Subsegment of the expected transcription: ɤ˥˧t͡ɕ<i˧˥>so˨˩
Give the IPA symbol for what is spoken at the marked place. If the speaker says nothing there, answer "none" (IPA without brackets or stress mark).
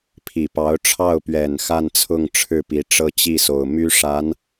i˥˩